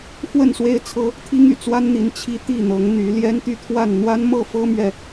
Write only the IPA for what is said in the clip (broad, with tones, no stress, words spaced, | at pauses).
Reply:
xwə˥˨nswe˦ɪ̯t͡sʰɤ˦ | t̪ʰi˦ŋy̰˨˩t͡swa˦nn̪i˨˦n t͡ɕʰi˦t̪i˥˨n̪ɤ˨˦ŋ n̪y˨˦ ljɛ˦nt̪y˥˨t̪ʰwa˥˨n n̪wa˦nmɤ˥˨ fɤ˦mɥɛ˨